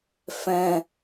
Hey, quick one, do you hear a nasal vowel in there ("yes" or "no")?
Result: yes